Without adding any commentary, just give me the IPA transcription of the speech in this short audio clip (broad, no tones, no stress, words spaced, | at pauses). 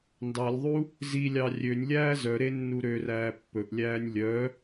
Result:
ndɑlʲðˤu | zilʲɑ rʲønʲlʲæː zœɾe nːuɾøræː pːɵʔlʲæːnʲ lʲœ